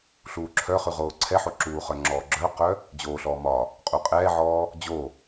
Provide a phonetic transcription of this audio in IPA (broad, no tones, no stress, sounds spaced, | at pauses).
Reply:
ɬ uː ǁʰ œ χ ʉ ʁ oː ǀʰ ɛ ħ o ǁ uː χ œ ŋ͡ǁ ɔː ɡ͡ǁ œ q œ | d͡ʑ oː ɬ ɔː m ɒ | qʼ u qʼ ɛː ʕ ɔː | d͡ʑ o